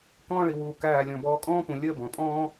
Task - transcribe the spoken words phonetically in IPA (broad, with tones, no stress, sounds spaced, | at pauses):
k ɔ̃ː˥ ɭ i˩˧ w uː˧˩ k æː˧˩ lʲ ɔ̃˧˩ b ɔː˧ kʼ ɔ̃ː˥ p ũ˩˧ lʲ əː˥˧ b ɔ̃˩˧ pʼ ɔ̃ː˥